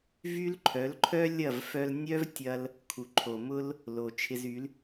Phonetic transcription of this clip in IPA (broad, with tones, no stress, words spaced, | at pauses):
vy˥l ǃʰœ˩˥lǃʰœ˥lʲɐ˥˩v fœ˧lnʲœ˥vtʲɐ˧l | kʰu˩ǃʰo˩mʊ˥l | lo˩ t͡ʃʰɪ˧zy˩˥l